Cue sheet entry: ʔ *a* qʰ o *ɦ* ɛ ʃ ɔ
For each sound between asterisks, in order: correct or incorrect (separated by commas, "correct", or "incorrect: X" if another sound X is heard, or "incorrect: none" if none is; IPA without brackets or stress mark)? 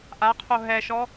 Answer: correct, correct